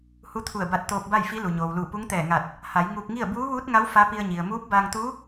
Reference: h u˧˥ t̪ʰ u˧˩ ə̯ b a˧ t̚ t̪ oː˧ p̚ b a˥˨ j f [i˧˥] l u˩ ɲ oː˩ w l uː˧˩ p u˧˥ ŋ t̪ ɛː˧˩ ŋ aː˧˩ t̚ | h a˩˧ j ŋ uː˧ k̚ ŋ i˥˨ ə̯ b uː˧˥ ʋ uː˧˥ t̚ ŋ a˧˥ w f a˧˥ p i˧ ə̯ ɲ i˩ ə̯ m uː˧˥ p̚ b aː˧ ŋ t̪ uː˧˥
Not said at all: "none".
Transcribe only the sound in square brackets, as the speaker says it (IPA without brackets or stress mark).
i˧˥